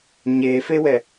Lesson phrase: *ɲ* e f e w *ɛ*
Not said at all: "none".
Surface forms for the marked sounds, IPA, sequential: ɲ, ɛ

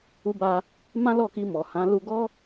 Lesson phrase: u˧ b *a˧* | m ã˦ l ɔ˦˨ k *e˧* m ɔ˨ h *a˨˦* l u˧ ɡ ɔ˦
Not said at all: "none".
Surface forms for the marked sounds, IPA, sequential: a˧, i˧, ã˨˦

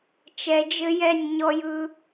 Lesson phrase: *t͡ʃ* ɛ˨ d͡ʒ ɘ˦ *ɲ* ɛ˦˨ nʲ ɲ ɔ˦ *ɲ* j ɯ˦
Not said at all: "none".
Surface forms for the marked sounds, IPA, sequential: t͡ʃ, j, none

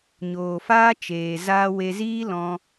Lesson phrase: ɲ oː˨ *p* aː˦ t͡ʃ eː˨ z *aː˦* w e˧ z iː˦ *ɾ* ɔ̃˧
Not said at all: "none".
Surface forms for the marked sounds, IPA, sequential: f, aː˧, l

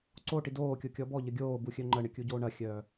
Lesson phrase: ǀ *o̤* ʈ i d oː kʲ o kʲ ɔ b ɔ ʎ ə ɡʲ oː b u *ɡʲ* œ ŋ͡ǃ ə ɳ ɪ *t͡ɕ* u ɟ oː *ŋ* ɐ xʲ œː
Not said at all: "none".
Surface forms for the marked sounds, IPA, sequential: o, xʲ, kʲ, ɳ

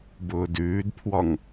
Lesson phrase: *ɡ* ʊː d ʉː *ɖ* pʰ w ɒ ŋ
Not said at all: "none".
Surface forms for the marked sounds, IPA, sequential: b, d

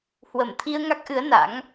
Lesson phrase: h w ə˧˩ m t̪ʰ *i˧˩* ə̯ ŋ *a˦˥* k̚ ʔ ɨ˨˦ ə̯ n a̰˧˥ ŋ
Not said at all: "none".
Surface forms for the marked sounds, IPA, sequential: i˧, a˦˥

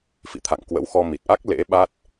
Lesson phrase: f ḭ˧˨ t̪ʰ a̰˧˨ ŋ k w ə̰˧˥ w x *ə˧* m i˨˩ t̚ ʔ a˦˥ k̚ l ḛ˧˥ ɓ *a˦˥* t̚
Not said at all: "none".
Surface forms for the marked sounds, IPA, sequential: ɔ˧, a˦˥

